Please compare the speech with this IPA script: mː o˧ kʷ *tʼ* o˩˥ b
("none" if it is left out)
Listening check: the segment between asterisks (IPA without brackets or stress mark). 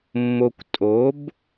tʼ